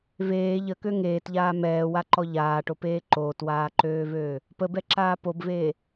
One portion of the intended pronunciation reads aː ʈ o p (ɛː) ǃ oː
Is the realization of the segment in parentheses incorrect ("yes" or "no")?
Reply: yes